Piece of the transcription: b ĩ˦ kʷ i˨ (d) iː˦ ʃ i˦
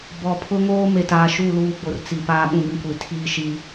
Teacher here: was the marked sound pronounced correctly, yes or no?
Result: no